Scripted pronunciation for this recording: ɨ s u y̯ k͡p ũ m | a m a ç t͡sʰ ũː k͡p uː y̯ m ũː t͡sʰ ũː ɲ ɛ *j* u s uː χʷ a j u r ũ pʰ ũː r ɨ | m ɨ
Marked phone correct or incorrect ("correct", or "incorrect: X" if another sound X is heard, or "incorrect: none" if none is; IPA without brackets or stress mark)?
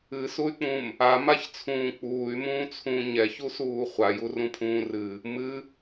incorrect: ç